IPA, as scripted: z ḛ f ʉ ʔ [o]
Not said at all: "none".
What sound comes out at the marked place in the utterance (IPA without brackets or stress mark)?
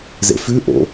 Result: o̰